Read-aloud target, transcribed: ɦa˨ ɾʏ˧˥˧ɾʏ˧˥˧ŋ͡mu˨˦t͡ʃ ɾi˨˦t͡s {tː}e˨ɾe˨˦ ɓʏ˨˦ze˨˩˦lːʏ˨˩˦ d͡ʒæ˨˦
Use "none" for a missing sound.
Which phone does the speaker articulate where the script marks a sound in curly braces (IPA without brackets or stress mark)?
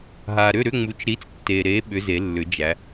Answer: tː